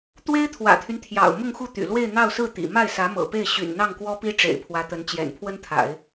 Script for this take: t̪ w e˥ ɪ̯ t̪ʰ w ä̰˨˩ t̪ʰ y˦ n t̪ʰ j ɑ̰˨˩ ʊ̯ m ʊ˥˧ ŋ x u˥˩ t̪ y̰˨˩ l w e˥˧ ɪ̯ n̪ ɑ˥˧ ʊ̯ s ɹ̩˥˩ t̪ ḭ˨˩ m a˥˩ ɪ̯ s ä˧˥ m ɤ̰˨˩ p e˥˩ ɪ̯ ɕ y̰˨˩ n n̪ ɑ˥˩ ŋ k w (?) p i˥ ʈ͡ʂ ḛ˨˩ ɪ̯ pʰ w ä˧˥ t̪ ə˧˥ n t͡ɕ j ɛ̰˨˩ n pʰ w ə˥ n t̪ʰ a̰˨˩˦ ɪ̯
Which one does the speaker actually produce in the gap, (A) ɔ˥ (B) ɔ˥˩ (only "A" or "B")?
A